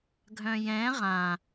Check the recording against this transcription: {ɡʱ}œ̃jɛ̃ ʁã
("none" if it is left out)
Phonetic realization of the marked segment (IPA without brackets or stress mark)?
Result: ɡʱ